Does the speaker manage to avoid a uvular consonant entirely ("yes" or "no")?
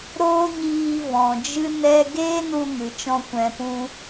yes